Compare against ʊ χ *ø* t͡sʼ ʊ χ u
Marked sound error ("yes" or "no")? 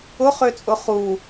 no